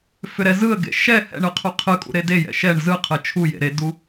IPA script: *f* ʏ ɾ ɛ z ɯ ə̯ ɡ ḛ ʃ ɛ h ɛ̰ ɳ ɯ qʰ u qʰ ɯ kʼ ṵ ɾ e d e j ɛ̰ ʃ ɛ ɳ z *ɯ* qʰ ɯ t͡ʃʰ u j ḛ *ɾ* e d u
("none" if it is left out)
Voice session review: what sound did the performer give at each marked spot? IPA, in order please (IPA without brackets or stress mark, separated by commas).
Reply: f, ɯ, ɾ